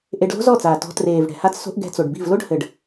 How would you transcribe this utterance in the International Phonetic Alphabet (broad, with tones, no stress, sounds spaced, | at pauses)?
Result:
ʔ e˧ ɖ l o̤˦ z ɔ˦˨ t͡s aː˨ t ɔ̤˧ t r eː˨ v ɽ ɛ̤˨ h a˧ t͡s s o̤˧ ʔ ɡ ɛ̤˧ t͡s o˨ ɖ b i̤˦˨ v l o˦ ɖ h ɘ˨ ɖ